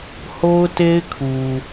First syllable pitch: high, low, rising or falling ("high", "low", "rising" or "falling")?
high